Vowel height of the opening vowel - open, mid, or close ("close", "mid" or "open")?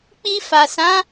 close